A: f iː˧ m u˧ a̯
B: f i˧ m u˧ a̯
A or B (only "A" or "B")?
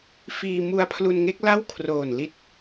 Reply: A